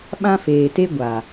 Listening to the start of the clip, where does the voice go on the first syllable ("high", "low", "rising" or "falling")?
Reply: high